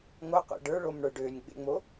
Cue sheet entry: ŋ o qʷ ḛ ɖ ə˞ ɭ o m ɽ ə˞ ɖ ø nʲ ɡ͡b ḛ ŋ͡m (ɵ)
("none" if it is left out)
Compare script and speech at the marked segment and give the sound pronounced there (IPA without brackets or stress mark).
o